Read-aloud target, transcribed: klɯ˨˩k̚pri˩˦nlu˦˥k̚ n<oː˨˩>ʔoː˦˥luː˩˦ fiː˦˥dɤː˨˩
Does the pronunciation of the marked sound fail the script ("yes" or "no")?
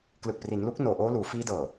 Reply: no